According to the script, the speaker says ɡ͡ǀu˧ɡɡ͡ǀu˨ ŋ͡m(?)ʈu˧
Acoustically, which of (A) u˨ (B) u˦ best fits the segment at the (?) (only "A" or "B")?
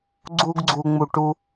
A